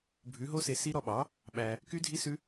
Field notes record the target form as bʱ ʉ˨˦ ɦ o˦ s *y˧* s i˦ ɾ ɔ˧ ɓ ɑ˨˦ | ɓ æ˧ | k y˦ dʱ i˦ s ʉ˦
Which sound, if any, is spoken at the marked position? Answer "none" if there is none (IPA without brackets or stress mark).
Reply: e˧